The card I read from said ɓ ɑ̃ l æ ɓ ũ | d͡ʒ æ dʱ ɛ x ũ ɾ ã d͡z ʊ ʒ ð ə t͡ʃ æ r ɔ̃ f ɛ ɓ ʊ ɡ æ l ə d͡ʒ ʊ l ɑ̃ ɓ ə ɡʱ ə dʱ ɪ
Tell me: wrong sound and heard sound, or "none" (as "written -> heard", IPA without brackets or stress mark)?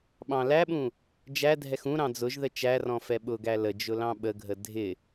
ã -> ɑ̃